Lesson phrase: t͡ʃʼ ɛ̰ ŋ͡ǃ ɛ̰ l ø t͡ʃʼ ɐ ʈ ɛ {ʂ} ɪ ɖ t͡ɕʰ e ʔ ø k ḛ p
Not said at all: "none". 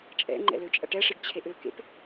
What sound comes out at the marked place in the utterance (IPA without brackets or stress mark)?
ʂ